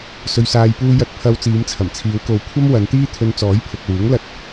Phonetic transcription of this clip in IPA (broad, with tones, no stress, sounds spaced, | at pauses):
s ɵ˨ ɥ s aː˨ j p uː˧ j ɐ˧ t̚ pʰ ɐ˧ w t͡s iː˨˧ m t͡sʰ ɐ˨˩ m t͡sʰ iː˨˧ w k o˨˧ w kʷʰ ɐ˥ m w ɐ˨˧ n t̪ iː˥ t̪ʰ ɵ˧ n t͡s ɔː˨˥ j pʰ ʊ˨ k̚ w uː˨˥ ŋ l ɐ˧ t̚